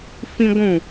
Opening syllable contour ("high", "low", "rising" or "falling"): high